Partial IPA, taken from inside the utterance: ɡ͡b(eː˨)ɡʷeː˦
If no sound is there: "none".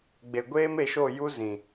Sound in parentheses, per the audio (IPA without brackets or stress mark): e˨